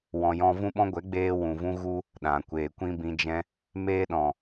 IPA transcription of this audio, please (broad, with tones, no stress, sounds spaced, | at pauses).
w ɔ̃˧ j ɔ̃˦ v ũ˦ ɓ ɔ̃˦ ɡʷ ɛ˨˦ ɡ͡b eː˦ w ũ˨ v ũ˦ ɣ u˦ | ɗ ã˨ kʷ eː˨ kʷ ĩ˦ b ĩ˧ d͡ʒ ɛ̃˦ | m eː˦ ɗ ɔ̃˨